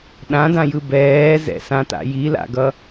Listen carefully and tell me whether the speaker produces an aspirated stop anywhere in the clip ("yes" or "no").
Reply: no